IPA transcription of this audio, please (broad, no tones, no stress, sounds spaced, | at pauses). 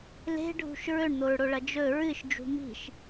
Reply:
l e̤ ɖʱ ṳ ʃ ɹ ɵ ɳ n̪ o ɹ ɽ o ɭ ɐ d͡ʒ ɵ ɹ ɨ ʃ d͡ʒ ṳ m i̤ ʃ